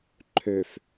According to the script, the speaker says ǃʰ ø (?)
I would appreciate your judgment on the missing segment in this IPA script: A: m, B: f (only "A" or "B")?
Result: B